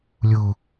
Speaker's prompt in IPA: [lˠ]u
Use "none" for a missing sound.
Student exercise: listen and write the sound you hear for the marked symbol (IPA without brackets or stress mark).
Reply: lʲ